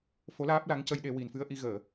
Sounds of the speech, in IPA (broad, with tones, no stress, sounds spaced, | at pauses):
f o˧˥ l aː˦˥ p̚ l a˧˥ ŋ c ə˧ j ɗ e˧ w i˨˩ n f ɨ˧ ə̯ ʔ i˧ ɣ əː˨˩˨